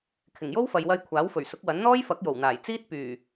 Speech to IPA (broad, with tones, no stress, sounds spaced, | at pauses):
kʰ ɪ˨˩ ŋ j o˥ w f ɐ˨ j w ɐ˧ j kʷʰ aː˨˥ w f ɵ˨˩ ɥ s ʊ˨˥ k̚ w ɐ˨˥ n n̪ ɔː˥ j f ɐ˨˥ k̚ j o˨˩ w n̪ aː˨˩ j t͡s iː˥ t̚ p yː˨˩